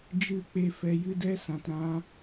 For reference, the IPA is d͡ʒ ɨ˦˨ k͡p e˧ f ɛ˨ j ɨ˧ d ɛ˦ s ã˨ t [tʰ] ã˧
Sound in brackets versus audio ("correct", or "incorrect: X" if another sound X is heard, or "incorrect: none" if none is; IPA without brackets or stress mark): incorrect: ɾ